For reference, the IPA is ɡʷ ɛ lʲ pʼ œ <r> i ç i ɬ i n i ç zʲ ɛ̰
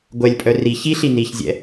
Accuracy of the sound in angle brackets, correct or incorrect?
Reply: correct